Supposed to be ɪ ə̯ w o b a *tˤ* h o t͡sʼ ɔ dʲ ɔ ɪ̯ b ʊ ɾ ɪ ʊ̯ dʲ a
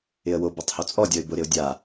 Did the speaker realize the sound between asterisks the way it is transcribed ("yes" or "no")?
yes